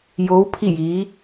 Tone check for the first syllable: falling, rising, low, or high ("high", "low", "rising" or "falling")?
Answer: rising